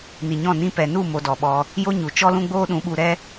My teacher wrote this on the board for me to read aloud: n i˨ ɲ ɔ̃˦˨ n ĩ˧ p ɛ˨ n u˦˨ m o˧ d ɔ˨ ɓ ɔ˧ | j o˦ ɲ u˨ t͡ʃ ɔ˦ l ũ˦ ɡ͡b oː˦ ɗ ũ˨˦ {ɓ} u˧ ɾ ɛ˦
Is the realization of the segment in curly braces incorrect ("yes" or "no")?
no